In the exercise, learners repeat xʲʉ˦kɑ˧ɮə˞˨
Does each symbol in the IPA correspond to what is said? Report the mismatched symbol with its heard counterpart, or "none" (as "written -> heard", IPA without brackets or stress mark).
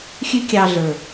k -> kʲ